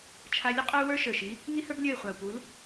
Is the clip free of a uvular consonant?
no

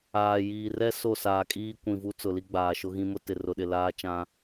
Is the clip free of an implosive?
no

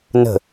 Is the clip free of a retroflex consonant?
yes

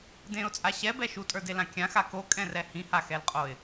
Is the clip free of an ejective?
no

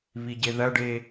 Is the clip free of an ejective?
yes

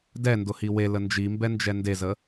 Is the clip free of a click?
yes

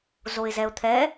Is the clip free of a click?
yes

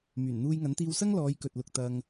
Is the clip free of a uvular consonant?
yes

